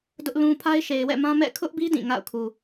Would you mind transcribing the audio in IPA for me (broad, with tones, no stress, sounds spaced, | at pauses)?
d ʊ˦ ʔ l ũ˦ pʰ a˦ ɪ̯ ʃ e˨ ɪ̯ w ɛ̰˦˨ m ã˦ m ɛ̰˦˨ kʰ ʊ˦ ʔ b i˦ d ĩ˦˨ ŋ a̰˦˨ ʊ̯ kʰ u˨